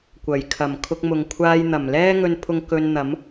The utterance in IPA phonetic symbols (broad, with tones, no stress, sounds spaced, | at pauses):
kʷ ɐ˨˩ j kʰ ɐ˨˩ m kʰ ʊ˧ k̚ m ʊ˨ ŋ kʷʰ aː˥ j n̪ ɐ˨˩ m l ɛː˥ ŋ ɵ˧ n pʰ ʊ˧ ŋ k ɵ˧ n n̪ ɐ˨˥ m